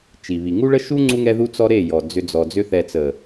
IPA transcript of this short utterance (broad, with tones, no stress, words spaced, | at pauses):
t͡ʃi˨βi˨ ŋu˦ɭə˦ʃu˦ ŋ͡ǀu˦ŋɛ˦ðu˦ t͡sɔ˦ɾe˦˨ jɔ˨ d͡zʏ˦d͡zɔ˧ d͡zʏ˦θɛ˧ t͡sə˨